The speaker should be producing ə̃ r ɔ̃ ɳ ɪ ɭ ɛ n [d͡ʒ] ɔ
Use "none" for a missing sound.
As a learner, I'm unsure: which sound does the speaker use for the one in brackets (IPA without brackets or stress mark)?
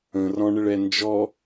d͡ʒ